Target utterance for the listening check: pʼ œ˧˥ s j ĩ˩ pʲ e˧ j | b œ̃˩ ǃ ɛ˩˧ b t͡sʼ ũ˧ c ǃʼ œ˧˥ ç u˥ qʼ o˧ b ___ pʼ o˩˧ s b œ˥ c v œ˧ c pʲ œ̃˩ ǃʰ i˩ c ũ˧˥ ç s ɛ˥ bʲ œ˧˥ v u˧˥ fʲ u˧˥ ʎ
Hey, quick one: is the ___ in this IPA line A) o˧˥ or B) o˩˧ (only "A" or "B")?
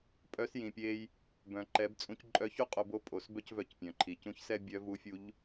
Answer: A